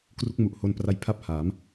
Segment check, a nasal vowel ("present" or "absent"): absent